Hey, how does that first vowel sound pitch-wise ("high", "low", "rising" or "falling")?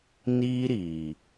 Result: high